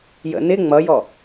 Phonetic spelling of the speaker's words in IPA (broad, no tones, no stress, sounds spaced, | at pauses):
j ə̰ n ɪ ŋ͡m ʌ j ɔ